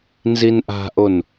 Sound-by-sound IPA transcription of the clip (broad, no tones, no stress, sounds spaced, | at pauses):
n z i n ʔ a̤ ʔ o n